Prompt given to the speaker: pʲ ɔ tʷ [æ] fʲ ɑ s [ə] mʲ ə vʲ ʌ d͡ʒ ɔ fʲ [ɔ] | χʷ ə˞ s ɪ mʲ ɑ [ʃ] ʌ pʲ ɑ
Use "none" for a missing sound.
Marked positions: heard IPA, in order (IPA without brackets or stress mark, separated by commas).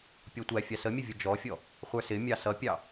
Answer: æ, ə, ɔ, s